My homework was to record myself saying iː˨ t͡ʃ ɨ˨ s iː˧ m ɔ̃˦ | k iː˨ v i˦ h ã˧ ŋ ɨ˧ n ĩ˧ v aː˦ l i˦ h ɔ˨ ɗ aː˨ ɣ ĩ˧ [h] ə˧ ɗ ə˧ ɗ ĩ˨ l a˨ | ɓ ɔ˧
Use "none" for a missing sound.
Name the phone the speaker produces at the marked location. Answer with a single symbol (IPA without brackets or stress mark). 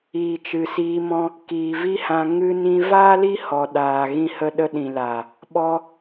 h